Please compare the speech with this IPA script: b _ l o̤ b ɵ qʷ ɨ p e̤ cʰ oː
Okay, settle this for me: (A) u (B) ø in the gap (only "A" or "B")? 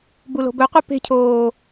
A